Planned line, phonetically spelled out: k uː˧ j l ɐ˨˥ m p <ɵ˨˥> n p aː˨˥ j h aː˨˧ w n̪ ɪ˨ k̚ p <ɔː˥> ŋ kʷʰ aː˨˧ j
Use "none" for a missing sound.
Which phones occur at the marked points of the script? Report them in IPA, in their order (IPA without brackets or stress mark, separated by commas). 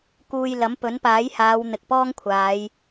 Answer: ɵ˨˥, ɔː˥